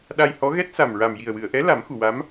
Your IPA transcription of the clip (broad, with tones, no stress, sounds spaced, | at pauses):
ɗ a˧ j h ɔ˧˥ ɣ ɛ˦˥ t̚ s a˨˩ m ɹ a˨˩ m j i˨˩ ə̯ w ɨ˨˩˨ ə̯ ʔ ɛ˧˥ l a˨˩˦ m x u˨˩˨ w a˧˥ m